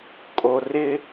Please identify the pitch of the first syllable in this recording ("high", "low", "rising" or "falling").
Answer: low